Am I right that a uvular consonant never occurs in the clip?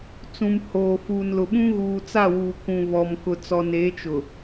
yes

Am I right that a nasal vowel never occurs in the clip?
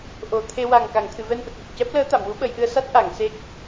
yes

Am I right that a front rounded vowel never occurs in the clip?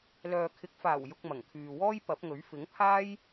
no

